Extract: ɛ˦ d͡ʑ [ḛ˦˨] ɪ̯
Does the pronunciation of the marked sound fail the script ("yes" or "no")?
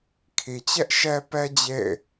no